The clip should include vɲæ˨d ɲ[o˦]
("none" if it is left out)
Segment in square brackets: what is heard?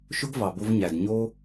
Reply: o˦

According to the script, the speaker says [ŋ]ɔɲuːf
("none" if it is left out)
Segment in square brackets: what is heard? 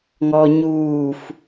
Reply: ŋ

